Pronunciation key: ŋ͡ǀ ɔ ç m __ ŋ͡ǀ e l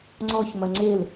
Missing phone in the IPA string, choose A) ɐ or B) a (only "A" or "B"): A